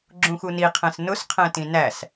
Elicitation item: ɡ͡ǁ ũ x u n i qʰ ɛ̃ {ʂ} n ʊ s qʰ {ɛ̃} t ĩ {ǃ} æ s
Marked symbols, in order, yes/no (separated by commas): no, yes, no